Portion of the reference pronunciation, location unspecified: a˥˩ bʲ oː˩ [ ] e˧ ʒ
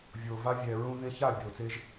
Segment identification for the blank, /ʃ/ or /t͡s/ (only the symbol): t͡s